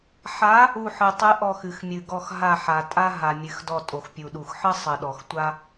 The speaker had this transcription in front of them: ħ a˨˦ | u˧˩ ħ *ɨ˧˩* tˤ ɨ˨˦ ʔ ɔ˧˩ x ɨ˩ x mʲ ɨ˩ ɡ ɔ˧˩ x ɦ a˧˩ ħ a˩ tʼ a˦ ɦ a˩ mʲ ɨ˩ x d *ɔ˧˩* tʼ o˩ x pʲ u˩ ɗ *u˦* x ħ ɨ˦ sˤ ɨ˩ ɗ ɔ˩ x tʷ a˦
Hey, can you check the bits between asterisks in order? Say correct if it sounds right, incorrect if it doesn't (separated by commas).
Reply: incorrect, correct, incorrect